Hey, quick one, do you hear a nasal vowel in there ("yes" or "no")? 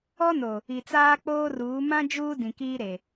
yes